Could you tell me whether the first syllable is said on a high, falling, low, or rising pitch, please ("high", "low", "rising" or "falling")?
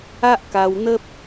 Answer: high